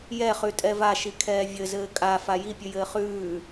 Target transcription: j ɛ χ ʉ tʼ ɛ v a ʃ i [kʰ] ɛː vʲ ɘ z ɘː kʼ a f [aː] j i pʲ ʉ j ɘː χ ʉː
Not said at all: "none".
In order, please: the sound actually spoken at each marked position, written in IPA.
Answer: kʰ, a

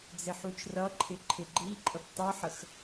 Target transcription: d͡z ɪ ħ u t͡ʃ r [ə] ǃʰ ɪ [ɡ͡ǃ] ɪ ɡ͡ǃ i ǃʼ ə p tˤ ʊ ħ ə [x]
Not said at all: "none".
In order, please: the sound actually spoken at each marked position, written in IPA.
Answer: ʌ, ǃʰ, x

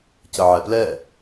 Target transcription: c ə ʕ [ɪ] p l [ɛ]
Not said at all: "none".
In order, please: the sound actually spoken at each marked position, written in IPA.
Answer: ɛ, ɛ

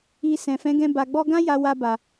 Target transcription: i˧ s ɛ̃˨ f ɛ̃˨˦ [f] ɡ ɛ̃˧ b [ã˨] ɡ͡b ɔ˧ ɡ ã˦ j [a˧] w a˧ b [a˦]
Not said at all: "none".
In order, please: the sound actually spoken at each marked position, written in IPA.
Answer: none, a˨, a˧, a˨

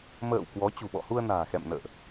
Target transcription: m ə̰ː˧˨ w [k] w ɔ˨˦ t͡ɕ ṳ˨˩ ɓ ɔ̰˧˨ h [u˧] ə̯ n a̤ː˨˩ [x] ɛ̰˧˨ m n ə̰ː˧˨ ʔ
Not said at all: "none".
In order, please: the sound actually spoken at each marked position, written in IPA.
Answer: k, u˧, x

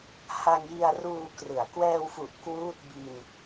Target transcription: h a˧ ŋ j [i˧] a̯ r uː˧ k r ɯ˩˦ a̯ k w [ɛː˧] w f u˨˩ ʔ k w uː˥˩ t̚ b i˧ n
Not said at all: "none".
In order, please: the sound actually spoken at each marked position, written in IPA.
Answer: i˧, ɛː˧

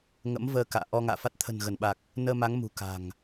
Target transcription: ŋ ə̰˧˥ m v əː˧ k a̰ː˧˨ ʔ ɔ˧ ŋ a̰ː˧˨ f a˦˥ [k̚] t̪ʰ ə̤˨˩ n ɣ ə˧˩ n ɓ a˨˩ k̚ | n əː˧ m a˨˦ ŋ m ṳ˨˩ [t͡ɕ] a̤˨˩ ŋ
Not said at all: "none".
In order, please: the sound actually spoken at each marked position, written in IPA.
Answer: t̚, k

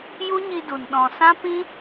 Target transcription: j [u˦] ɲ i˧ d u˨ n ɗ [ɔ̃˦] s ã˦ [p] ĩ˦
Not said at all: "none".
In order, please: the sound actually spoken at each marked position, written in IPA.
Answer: u˦, ɔ̃˨, p

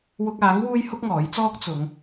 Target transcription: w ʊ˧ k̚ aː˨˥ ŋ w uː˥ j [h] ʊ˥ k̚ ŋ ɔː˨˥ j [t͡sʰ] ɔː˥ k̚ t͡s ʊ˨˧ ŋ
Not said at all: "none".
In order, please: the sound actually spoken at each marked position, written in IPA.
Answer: h, t͡s

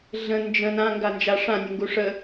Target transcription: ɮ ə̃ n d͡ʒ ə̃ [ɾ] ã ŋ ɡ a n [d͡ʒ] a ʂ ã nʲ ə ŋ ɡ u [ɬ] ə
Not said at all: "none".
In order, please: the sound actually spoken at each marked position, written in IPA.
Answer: n, d͡ʒ, ʂ

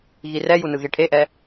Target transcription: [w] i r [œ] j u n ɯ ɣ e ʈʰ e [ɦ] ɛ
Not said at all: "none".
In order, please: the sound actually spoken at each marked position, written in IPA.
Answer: ɣ, ɛ, ʔ

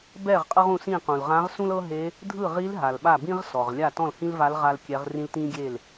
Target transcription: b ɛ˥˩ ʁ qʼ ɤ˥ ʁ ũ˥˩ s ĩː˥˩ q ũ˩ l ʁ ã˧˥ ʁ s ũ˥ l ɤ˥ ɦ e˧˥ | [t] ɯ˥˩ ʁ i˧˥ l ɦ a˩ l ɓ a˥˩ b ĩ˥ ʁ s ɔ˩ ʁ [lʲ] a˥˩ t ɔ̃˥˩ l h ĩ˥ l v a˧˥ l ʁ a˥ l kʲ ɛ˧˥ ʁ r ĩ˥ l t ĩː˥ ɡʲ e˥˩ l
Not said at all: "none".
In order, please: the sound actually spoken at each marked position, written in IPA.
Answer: dʱ, lʲ

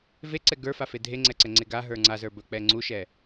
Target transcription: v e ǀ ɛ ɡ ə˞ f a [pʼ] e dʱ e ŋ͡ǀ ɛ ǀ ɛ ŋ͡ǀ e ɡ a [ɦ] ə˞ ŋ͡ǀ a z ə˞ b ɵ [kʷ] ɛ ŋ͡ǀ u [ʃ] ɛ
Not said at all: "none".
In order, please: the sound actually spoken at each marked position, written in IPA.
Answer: f, ɦ, k͡p, ʃ

